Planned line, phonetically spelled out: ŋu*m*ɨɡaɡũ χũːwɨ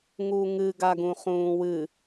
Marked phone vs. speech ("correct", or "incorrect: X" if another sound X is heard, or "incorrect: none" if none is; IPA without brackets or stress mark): incorrect: ŋ